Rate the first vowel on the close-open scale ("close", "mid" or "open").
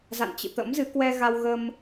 open